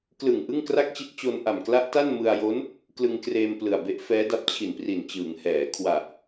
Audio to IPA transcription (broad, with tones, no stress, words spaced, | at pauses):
klɯ˨˩ŋ ʔɯ˥˩ŋkra˥˩k̚t͡ɕi˦˥t̚ t͡ɕo˧nʔa˨˩mkla˦˥ʔta˥˩n mɯ˧a̯jo˦˥n | klɯ˧ŋkreː˧m plɯ˨˩a̯be˦˥ʔfɛː˦˥da˦˥p̚ t͡ɕʰi˨˩npri˨˩nt͡ɕɯː˩˦ŋhɛː˩˦ kʰwa˨˩ʔ